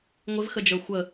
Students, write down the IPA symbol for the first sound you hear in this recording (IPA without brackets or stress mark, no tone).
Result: ŋʷ